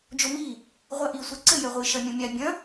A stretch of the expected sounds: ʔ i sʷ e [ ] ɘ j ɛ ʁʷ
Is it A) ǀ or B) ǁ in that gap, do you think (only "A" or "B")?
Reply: A